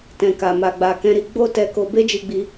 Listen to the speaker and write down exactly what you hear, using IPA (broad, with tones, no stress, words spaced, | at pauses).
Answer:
tɛ̃˨ka˨ ma˨ɡ͡ba˨kɛ̃˧ɾi˧ ɡ͡bo˦tɛ˧ko˧ be˦d͡ʒi˧ɡ͡bi˧